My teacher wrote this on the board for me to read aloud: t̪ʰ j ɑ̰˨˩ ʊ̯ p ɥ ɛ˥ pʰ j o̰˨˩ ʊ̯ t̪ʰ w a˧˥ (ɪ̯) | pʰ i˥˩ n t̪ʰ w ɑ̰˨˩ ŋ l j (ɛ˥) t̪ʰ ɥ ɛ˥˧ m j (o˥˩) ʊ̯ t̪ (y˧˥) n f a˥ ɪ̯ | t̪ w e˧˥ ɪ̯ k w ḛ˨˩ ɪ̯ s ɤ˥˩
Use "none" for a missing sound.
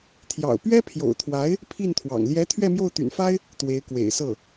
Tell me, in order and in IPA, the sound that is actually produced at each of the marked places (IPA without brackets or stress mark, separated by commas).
ɪ̯, ɛ˧˥, o˥˩, y̰˨˩